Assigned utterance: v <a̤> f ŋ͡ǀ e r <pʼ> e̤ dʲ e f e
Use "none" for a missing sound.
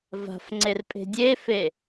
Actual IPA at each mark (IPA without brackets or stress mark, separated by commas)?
a̤, pʼ